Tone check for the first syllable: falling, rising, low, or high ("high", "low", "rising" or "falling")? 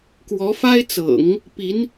rising